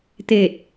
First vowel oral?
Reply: yes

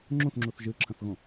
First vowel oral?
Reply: no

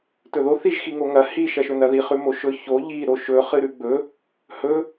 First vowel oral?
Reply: yes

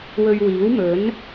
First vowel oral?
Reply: yes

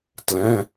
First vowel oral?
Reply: no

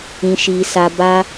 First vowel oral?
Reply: no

